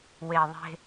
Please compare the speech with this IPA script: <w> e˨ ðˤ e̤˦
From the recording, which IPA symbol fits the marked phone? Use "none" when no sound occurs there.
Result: w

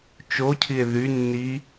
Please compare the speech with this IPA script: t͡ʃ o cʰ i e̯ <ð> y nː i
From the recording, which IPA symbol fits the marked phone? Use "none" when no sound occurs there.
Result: ð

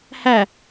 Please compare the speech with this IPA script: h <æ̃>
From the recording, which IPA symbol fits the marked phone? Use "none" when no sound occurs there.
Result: æ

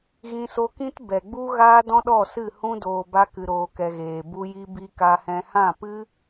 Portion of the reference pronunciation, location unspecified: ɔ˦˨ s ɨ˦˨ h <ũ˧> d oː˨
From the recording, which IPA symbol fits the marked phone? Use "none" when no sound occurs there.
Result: ũ˧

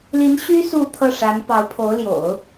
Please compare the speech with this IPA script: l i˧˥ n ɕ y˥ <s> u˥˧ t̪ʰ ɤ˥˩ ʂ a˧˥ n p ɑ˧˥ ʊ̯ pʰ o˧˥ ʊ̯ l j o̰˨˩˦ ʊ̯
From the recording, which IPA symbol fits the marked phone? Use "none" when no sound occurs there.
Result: s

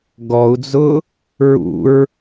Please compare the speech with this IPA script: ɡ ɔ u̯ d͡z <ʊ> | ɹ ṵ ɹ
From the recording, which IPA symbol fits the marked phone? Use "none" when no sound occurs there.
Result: ʊ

